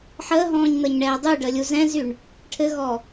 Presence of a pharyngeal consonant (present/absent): present